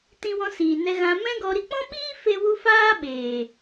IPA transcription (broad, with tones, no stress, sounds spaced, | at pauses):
t ĩ˧ w ɔ̃˧ s iː˨ n ɛ˧ ɣ ã˧ m ɛ̃˦ ɡ ɔ˧ ɾ i˧ k͡p ɔ̃˦ ɓ iː˦ f e˦ w u˦ f aː˦ ɓ eː˨